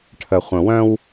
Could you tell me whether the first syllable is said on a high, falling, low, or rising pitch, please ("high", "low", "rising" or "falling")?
low